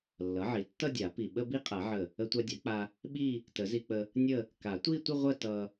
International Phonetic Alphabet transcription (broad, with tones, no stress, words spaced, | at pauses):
lːʌ˩˥ʕi˩˥tːʌ˥˧dʲa˨˩˦ pi˧˩ ɓə˥˧bi˥˧qʼa˨˩˦ʕə˧˩ | ə˧tʷa˧dʲa˩˥k͡pa˧ | ɓi˥˧ | tə˨˩˦zi˧k͡pə˧ | nʲə˥˧ | ka˨˩˦tʷi˥˧tʷə˥˧ ʁʷə˥˧tʌ˧